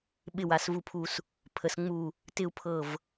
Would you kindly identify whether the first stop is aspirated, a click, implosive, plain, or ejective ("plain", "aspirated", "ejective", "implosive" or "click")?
implosive